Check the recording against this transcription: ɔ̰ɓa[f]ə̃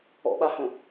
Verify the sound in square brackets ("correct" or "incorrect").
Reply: incorrect